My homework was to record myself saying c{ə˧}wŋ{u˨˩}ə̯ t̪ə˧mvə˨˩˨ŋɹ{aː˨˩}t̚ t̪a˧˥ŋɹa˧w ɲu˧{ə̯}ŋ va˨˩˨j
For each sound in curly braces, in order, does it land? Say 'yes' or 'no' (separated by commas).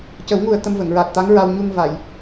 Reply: no, yes, yes, no